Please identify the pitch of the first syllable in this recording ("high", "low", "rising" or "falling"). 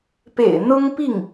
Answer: low